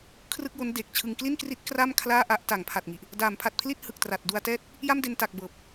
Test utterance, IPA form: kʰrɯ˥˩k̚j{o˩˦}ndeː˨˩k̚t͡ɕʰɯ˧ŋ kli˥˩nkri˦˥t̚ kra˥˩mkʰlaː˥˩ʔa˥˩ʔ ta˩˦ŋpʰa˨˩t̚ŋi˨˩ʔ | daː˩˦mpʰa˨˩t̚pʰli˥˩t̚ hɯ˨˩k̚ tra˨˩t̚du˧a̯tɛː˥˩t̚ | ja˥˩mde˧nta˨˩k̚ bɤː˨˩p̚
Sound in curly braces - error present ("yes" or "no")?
yes